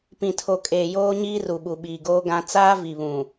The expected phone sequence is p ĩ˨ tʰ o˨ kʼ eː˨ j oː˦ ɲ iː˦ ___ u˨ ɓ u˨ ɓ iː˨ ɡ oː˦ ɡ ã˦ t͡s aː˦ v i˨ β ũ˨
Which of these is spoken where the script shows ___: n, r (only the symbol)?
r